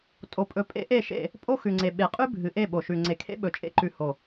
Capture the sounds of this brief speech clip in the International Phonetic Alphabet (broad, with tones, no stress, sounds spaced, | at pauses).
tʼ o˨ pʼ ɵ˨ pʼ ḛ˦ ʔ e˦˨ ʃ ḛ˦˨ | pʼ o˦ x ʉ˨ ŋ͡ǀ e˨ ɓ e˨ qʼ ʉ˦ bʱ ɨ˨ ʔ e˦˨ ɓ o˨ ʃ ʉ˨ ŋ͡ǀ e˨ kʰ ḛ˦ ɓ ɵ˨ t͡ʃʼ ḛ˦ ǃ ʉ˨ h o˨